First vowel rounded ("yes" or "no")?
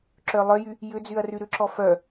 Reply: yes